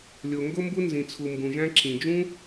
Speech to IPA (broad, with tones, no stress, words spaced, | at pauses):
lʲo˩ŋɡo˥mbu˥ nzĩ˩t͡sʰu˩mbũ˩ʒæ̃˦ ǁĩ˩d͡ʒũ˥